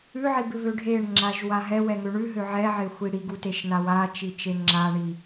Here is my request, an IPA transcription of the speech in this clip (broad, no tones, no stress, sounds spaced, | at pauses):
ʉ ʕ i b ɪ β ø ɖʱ e ɳ ŋ͡ǁ a ʒ w a ɦ ɛ w ɛ ŋ ø ɳ ʉ ɦ ø ʕ ɛ ʕ ɪ xʷ i ɽ i ɡ u t e ʃ n a w a t͡ʃ i t͡ʃ e ŋ͡ǁ a ɳ i